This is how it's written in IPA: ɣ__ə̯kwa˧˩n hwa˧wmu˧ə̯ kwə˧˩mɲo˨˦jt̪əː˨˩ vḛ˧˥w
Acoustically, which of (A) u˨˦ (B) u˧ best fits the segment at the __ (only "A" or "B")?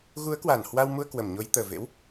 A